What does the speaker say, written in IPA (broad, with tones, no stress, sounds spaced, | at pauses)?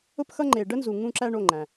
ʊ˦ p x ʌ˦ ŋ͡ǃ e˩ ɖ ə˦ n z u˩ ŋ ũ˦ ǁ æ˦ ɳ o˩˧˩ ŋ͡ǃ æ̃˩